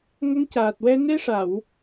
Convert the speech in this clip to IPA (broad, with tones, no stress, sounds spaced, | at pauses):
ŋ ə˧˥ ŋ c aː˨˩ t̚ w ɛ˧ n e˧ ʂ a˨˩˨ w